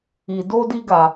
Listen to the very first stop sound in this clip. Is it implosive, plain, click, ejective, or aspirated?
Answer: plain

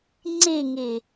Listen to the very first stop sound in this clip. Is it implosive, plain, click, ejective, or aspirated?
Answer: click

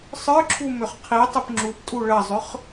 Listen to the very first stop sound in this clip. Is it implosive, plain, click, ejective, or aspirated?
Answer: click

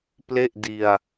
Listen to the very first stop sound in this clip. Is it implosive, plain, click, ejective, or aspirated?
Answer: plain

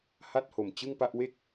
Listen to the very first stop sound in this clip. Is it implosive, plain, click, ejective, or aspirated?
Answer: plain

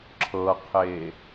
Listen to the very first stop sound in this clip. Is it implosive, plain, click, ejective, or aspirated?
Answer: click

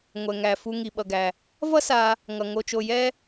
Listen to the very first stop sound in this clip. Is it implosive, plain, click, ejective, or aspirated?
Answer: implosive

